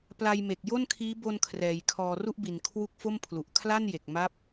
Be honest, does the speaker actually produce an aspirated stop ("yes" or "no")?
yes